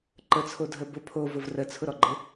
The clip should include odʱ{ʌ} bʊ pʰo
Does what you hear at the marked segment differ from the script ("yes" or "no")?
yes